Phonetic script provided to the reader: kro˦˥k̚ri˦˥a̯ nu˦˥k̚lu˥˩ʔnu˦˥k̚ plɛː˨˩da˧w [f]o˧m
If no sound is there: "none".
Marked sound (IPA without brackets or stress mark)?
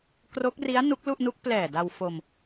f